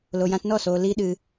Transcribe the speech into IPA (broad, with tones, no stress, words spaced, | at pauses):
lo˨jã˧tnɔ˦˨soː˨ li˦ɗɨ˧